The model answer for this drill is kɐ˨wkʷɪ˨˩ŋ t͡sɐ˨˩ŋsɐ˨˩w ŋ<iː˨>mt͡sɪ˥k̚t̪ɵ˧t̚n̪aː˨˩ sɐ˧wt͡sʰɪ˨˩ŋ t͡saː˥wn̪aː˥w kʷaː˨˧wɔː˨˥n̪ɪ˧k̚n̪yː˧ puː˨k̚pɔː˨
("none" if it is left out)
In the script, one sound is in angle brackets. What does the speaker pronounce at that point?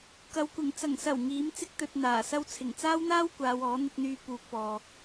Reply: iː˨˥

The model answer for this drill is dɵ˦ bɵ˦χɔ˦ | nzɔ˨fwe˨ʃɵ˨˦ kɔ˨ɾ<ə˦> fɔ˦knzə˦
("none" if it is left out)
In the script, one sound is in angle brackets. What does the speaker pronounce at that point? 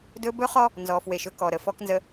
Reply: ə˨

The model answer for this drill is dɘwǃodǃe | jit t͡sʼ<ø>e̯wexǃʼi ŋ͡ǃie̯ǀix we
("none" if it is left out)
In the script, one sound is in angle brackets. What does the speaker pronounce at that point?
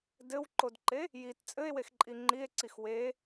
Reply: ɘ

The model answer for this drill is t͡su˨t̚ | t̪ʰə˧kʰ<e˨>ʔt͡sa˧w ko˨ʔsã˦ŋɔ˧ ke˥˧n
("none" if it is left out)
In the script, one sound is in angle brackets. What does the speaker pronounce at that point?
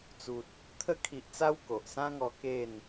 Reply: i˨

